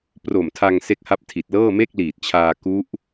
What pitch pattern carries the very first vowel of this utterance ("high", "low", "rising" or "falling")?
low